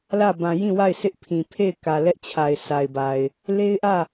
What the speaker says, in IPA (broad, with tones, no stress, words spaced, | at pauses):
lä˦˨ bã˨jĩ˦˨wa˦˨ɪ̯ sɪ˦ʔpʰĩ˨ pʰe˦˨ɪ̯kä˨ lɛ˦ʔt͡ɕʰa˨ɪ̯ sa˨ɪ̯ba˨ɪ̯ | le˦ɪ̯ʔä˦˨